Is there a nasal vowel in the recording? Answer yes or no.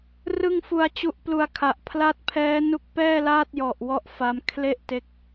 no